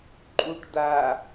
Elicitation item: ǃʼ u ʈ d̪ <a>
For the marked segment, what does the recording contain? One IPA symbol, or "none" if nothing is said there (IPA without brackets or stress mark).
a